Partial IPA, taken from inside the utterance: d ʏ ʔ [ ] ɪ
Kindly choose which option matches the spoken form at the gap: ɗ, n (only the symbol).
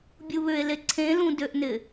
n